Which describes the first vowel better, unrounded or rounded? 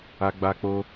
unrounded